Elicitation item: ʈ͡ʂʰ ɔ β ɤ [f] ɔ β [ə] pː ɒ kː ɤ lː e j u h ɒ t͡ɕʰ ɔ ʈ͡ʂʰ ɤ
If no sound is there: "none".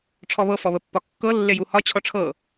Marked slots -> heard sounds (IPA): f, ə

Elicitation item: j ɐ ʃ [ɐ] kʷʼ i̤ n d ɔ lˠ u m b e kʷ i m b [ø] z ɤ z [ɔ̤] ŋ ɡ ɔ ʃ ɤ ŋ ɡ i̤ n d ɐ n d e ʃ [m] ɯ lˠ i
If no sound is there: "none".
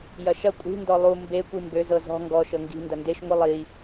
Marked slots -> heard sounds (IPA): ɐ, ø, ɔ̤, ŋʷ

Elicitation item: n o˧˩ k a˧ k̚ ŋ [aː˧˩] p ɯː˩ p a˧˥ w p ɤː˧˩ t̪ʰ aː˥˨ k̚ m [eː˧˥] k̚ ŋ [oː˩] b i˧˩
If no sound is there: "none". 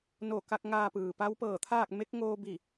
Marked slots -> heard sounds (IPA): aː˧, e˧˥, oː˧

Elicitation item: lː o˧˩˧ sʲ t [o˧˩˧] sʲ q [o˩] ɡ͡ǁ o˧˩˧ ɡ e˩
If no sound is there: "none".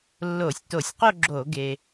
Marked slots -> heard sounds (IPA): o˧˩˧, o˥˧

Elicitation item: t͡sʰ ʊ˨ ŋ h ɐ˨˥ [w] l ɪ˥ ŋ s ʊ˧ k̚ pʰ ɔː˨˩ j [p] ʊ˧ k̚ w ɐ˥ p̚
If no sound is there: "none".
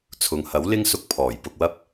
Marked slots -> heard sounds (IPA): w, p

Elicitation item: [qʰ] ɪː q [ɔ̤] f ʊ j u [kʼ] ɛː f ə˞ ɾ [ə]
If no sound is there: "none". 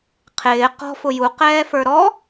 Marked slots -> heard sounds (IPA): qʰ, ɔ̤, q, ɔ

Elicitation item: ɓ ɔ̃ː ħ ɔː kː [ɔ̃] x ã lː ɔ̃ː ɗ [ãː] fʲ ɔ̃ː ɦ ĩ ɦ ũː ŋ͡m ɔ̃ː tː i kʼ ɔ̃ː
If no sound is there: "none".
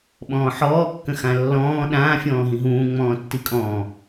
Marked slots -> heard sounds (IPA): ə̃, ãː

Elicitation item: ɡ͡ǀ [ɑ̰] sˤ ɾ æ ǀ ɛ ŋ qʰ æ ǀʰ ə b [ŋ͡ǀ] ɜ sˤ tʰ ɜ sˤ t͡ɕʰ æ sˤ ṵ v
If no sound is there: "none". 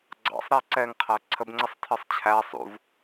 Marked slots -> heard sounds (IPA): ɑ̰, ŋ͡ǀ

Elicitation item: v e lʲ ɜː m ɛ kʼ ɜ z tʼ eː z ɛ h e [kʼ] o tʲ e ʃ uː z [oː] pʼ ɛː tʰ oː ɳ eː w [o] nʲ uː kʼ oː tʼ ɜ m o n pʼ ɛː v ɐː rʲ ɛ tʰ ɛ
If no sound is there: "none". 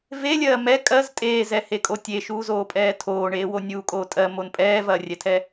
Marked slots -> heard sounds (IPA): kʼ, oː, o

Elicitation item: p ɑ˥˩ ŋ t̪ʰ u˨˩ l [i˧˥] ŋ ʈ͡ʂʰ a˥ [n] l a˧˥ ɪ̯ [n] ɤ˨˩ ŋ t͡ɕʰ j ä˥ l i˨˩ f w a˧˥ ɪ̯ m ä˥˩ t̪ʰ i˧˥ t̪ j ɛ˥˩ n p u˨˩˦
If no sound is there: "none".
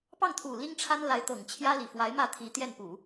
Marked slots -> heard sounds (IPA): i˥, n, t̪

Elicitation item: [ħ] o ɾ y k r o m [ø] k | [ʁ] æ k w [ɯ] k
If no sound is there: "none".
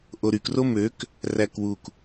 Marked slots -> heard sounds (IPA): ʔ, ø, r, u

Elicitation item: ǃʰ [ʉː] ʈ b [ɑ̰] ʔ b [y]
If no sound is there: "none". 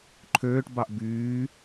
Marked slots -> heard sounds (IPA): øː, ɑ, yː

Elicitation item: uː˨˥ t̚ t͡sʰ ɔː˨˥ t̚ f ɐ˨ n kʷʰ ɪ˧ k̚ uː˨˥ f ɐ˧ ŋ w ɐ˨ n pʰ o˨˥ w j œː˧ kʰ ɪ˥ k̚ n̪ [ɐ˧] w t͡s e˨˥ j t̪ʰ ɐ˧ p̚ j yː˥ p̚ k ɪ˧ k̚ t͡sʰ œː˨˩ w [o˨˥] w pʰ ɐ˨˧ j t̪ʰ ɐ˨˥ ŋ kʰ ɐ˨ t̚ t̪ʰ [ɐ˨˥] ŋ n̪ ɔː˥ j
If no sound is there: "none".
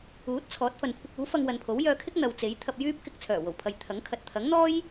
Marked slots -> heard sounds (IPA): ɐ˨, o˨˩, ɐ˨˥

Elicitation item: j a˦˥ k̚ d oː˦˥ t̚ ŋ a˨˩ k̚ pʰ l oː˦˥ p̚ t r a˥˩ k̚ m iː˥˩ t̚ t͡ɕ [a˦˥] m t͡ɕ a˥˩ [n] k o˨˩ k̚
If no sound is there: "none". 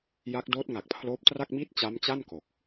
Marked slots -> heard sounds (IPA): a˦˥, n

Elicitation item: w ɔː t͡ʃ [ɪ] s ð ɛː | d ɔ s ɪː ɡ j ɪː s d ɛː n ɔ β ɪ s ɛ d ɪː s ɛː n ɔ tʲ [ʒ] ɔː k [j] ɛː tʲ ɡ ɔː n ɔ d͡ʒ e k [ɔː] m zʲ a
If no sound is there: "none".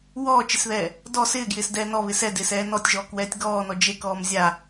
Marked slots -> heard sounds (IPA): ɪ, ʒ, w, ɔː

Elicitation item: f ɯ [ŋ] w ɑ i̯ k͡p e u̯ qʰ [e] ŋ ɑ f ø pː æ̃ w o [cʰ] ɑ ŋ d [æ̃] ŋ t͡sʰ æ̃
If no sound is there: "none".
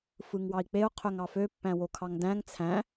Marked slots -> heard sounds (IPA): ŋ, ø, kʰ, æ̃

